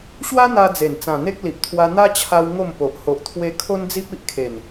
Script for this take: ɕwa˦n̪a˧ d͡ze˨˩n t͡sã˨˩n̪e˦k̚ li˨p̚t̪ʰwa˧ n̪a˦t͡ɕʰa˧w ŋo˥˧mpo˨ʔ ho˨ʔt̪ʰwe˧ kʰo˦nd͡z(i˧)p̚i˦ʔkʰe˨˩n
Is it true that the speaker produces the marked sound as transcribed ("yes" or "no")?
no